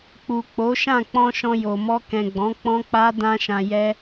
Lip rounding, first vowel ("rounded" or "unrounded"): rounded